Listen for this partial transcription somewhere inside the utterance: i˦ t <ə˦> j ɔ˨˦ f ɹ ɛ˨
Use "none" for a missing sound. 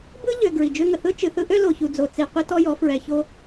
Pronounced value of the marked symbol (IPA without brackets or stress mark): ɔ˦